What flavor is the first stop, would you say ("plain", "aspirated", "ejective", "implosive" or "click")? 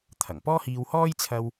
aspirated